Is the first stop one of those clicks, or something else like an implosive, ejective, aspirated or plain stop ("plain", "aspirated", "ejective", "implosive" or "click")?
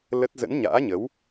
plain